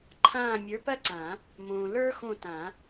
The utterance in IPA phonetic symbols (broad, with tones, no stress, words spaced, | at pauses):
ǃʰãː˦˨mʲə˞˨˥pɜ˥ǀã˨˩˦ | mõ˨ lə˞˥xõ˦˨tã˨˩˦